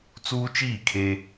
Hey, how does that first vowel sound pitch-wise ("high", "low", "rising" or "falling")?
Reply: high